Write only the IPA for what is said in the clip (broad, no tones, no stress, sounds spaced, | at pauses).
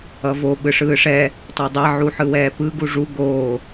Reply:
ʌ v o ɓ ɯ ʂ ɯː ʂ ɛ | tˤ ɛ dˤ ɛ ʕ u ħ ɯ w ɛː p ɯ ɡ u ʐ u ɡ oː